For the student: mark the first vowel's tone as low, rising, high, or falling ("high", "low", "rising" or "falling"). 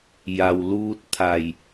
low